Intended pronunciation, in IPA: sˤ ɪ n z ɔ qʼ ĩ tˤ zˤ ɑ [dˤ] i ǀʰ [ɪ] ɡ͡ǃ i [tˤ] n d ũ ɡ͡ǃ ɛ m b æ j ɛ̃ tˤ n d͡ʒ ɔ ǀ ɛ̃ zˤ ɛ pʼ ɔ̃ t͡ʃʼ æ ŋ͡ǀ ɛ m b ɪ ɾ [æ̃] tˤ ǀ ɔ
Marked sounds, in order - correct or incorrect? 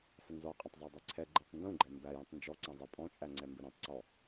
correct, incorrect: ɛ, correct, correct

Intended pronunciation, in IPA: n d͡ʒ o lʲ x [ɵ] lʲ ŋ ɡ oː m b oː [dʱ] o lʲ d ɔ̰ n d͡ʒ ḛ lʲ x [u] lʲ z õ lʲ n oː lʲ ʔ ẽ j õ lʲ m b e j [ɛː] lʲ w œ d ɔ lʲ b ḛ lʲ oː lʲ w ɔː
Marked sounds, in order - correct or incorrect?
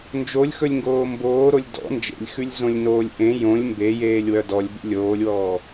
correct, incorrect: ɾ, incorrect: ʉ, incorrect: eː

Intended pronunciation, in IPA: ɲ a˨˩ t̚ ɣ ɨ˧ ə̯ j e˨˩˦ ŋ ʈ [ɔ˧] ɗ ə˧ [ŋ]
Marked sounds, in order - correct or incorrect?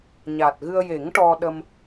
correct, incorrect: m

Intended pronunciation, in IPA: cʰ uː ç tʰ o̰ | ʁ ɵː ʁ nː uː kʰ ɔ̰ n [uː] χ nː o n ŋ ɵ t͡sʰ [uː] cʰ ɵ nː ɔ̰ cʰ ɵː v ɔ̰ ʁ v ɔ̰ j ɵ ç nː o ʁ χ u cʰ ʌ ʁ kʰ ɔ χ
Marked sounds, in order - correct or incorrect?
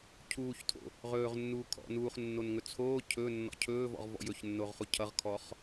correct, incorrect: oː

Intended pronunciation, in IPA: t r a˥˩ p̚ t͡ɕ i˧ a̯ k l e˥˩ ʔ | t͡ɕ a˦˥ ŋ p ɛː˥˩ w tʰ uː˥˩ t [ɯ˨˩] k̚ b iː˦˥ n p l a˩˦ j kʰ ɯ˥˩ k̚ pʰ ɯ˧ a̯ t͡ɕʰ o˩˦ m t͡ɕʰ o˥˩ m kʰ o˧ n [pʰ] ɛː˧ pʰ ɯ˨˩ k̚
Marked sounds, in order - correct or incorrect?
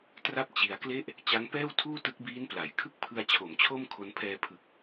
incorrect: ɯ˦˥, correct

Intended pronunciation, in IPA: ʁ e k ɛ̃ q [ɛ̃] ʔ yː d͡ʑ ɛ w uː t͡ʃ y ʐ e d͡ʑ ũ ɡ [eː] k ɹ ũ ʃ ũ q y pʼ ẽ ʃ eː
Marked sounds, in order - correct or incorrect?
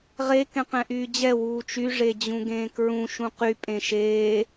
correct, incorrect: ẽː

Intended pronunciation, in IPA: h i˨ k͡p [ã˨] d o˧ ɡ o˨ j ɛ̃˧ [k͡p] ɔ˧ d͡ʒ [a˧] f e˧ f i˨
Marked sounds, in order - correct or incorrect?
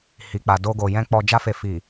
incorrect: a˨, correct, incorrect: a˦

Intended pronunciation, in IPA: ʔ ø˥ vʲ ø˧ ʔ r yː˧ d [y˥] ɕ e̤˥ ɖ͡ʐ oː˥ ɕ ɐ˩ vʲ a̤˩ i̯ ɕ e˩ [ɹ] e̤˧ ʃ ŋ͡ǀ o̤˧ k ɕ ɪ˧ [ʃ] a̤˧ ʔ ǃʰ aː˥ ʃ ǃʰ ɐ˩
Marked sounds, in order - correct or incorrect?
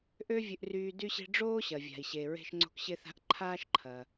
correct, correct, incorrect: θ

